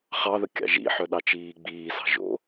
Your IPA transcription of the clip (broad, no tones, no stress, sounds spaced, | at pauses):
χ ɑ ð ə kʲ ɑ̰ ʒ ḭ ħ œ ɗ ɑ t͡ʃ iː ɡ͡b iː s ɑ̤ ʒ o̰